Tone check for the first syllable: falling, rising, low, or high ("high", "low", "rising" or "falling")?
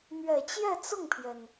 low